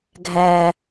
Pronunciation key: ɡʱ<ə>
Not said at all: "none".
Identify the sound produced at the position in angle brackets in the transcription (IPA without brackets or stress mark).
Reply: æ